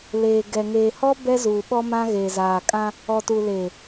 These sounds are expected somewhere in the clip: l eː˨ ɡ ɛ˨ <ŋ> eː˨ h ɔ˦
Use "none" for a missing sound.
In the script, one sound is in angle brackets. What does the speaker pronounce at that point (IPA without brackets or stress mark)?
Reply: ŋ